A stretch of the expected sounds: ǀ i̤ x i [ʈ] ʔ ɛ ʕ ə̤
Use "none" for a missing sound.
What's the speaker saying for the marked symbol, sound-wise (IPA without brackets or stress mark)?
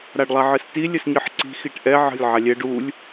ʈ